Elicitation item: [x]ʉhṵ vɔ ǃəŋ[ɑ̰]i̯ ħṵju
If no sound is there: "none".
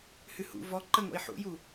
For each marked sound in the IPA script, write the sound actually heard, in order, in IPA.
h, ɔ̰

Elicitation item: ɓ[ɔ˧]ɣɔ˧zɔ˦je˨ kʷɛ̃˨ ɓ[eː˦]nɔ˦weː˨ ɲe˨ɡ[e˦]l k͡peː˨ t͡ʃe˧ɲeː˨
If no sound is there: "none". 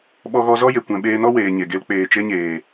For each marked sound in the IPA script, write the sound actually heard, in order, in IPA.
ɔ˧, eː˧, e˧

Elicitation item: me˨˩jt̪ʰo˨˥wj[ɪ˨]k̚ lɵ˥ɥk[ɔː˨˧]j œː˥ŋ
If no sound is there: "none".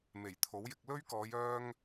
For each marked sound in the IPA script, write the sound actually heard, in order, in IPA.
ɪ˧, ɔː˨˧

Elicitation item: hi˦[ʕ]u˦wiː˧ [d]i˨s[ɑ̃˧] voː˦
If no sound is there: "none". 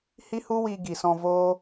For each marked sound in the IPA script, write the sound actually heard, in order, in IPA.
h, ɡ, ɔ̃˧

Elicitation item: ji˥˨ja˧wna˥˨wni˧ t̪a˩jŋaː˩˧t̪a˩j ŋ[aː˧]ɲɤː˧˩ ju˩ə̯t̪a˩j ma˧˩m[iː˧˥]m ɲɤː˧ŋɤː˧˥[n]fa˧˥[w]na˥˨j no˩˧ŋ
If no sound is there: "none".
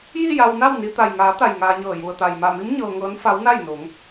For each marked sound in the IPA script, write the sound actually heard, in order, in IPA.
aː˧, i˧˥, n, w

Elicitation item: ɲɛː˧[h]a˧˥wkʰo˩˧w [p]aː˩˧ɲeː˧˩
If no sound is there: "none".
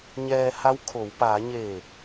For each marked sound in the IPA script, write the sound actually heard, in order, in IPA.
h, p

